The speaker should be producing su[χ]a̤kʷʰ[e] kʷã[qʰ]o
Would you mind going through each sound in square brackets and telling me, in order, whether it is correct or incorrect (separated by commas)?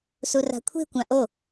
incorrect, incorrect, incorrect